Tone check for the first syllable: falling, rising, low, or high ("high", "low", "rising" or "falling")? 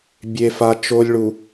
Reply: low